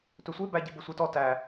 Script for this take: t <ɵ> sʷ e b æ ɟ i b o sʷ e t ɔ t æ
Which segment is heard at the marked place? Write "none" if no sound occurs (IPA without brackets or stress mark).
ɵ